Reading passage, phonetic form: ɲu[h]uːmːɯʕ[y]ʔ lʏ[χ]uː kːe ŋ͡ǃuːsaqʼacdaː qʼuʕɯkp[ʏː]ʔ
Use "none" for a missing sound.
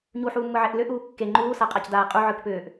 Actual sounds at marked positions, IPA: ħ, e, ʔ, ʏː

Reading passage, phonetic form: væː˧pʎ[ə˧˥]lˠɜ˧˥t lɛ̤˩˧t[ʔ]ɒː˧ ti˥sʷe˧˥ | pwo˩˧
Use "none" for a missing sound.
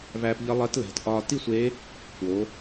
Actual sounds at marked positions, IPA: ə˧˥, ʔ

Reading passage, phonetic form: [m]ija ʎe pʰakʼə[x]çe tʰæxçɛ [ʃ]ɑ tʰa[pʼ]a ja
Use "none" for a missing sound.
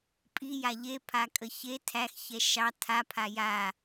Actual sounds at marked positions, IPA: pʼ, none, ʃ, pʰ

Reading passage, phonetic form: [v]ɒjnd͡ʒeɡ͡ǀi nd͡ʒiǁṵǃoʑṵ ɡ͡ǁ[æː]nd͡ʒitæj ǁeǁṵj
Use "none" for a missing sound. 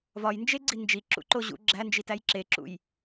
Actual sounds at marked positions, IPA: v, æ

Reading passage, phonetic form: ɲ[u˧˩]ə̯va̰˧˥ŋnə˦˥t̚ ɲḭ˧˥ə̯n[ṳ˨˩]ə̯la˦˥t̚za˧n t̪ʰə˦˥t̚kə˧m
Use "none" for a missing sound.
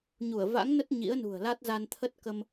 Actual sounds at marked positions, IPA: u˧˩, ṳ˨˩

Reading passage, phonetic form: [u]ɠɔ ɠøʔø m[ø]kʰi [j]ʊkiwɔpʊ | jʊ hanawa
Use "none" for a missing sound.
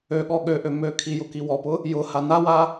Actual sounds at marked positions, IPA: ø, ø, j

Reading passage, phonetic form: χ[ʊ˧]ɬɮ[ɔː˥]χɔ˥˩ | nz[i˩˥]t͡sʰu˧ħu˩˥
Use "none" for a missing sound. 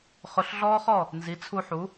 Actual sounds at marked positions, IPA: ʊ˧, ɔː˥, i˩˥

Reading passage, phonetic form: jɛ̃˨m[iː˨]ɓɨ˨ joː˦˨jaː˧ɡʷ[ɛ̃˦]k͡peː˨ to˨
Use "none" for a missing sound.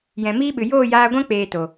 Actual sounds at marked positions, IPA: iː˦, ɛ̃˦

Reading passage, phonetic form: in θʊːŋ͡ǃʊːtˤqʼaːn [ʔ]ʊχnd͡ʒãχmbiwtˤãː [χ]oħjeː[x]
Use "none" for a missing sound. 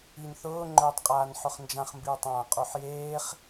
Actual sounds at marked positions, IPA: ħ, qʼ, χ

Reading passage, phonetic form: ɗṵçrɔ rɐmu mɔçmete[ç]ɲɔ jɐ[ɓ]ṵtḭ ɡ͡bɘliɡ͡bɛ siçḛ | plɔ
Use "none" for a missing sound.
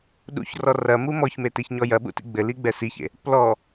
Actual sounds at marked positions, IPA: ç, ɓ

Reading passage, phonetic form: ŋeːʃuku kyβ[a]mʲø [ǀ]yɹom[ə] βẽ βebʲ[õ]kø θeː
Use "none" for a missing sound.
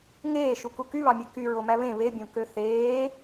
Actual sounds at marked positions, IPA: ɑ, k, æ, õ

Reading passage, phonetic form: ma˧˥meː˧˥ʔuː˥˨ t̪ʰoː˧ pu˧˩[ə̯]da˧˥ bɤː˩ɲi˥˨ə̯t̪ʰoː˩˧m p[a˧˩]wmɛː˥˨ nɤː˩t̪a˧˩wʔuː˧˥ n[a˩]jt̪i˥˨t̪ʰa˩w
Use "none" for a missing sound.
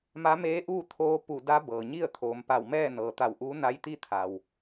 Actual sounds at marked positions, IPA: none, a˧˩, a˧˥

